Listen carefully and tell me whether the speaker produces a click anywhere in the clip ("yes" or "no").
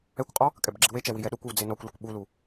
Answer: yes